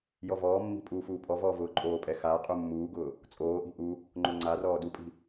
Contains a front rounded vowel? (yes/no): no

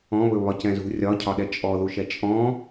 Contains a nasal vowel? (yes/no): yes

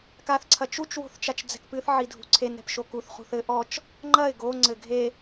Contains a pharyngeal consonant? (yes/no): yes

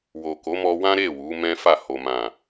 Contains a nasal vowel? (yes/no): yes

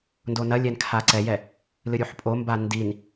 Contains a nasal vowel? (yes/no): no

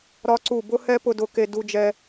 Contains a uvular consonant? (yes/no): no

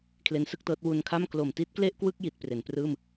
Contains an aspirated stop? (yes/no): yes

